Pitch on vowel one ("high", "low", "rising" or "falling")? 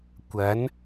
rising